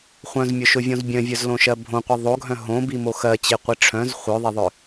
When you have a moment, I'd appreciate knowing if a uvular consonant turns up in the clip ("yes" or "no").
yes